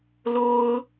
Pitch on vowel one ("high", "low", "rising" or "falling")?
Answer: high